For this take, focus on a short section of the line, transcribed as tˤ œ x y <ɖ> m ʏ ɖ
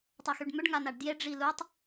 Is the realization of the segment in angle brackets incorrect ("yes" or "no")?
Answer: no